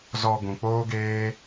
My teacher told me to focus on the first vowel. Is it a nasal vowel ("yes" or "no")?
no